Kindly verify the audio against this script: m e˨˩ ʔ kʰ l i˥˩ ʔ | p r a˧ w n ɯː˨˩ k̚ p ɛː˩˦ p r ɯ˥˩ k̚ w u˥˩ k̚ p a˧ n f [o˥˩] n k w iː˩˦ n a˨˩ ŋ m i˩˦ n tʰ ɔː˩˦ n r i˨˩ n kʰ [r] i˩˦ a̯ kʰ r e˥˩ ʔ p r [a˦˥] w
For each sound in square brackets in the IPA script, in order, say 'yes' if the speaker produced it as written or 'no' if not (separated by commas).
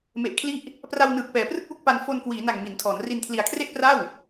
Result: no, no, no